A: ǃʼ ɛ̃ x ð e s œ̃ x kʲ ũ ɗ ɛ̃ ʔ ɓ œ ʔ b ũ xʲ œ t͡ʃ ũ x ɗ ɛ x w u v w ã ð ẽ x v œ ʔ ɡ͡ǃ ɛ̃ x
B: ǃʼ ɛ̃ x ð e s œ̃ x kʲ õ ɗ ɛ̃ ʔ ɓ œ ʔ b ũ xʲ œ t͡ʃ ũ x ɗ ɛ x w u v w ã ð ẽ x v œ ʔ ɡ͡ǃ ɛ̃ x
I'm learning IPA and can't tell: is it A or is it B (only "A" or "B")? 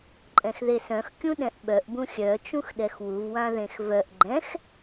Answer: A